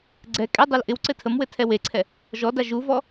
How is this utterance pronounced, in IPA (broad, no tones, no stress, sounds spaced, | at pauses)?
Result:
ɡ͡ǀ ɛ kʼ ɛ dˤ ɤ l ʔ ɪ w ǀ ɘ tʰ ə m w ɘ tʰ ɛ w e ǀʰ ɛ | ʒ ɔ d a ʒ u v ɔ